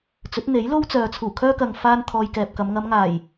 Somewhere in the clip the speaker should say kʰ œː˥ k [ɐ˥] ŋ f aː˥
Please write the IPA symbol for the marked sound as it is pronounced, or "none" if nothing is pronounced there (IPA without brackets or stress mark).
ɐ˨